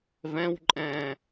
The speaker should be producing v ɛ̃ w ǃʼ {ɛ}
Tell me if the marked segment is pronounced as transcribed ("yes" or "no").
no